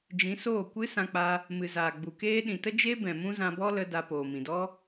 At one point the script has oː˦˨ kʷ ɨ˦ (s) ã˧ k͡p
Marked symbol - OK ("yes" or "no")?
yes